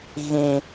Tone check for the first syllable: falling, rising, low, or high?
low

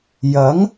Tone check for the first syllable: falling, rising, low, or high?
rising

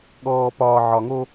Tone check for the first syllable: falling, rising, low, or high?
low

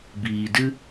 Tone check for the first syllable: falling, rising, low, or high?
low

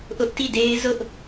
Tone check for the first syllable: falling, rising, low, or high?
high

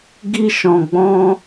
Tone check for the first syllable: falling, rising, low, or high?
high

